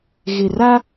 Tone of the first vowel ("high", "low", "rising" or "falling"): low